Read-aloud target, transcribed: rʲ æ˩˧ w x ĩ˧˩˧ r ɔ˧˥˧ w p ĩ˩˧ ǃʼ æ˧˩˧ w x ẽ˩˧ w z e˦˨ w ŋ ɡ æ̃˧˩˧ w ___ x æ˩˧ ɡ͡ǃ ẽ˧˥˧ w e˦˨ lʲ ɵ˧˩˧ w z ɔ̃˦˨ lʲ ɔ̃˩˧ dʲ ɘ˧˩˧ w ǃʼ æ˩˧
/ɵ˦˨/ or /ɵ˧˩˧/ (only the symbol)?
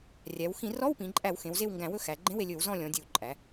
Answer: ɵ˦˨